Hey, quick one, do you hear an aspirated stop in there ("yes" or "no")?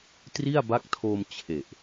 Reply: yes